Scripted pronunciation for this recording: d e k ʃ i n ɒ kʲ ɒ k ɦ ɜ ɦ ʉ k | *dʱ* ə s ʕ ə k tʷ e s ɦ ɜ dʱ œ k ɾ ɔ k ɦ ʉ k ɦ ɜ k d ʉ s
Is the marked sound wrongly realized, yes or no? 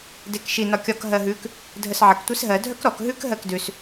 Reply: no